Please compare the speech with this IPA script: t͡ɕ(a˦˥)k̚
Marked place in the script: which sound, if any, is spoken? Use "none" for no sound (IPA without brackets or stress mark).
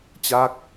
a˦˥